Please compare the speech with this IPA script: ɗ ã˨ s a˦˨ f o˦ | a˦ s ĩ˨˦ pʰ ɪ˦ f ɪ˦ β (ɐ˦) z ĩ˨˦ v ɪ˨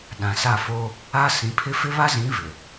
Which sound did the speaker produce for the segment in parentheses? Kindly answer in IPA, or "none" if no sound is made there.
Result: a˦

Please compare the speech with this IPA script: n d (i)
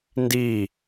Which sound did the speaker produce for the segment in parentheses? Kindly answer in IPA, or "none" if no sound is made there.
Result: i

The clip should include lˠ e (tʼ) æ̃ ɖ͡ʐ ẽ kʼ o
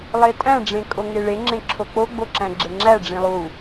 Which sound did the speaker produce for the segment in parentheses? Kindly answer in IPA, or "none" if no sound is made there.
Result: tʼ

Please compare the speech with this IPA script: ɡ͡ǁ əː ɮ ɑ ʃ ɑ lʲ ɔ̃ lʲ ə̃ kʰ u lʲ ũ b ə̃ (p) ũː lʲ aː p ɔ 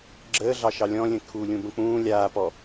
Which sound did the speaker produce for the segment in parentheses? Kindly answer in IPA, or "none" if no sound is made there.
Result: k͡p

